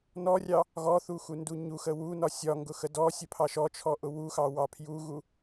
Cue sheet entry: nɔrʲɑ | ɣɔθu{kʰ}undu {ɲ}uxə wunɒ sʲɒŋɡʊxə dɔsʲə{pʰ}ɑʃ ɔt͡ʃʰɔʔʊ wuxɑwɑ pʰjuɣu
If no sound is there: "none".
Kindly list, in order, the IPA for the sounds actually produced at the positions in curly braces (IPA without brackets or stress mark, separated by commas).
x, ɲ, pʰ